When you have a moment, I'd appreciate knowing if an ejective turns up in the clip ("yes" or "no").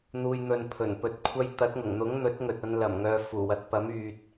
no